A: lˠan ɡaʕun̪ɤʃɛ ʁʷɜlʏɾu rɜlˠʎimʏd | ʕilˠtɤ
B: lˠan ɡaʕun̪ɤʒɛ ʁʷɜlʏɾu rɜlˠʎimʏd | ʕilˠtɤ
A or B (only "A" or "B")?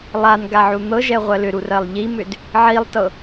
B